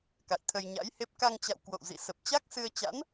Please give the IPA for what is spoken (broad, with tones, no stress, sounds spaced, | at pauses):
k a̰˧˨ j t̪ʰ ə˧ j ɲ a̰˧˥ j h e˦˥ p̚ k a˧ ŋ t͡ɕ a̰˧˨ w k w o̰˧˨ w z ḭ˧˨ s ə˨˩ p̚ t͡ɕ a˦˥ k̚ s ɨ˧ ə̯ t͡ɕ a̰˧˥ n